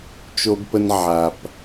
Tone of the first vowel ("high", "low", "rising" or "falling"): high